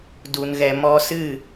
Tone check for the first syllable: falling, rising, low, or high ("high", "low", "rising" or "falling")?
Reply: low